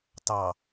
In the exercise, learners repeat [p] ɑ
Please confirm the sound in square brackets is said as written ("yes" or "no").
no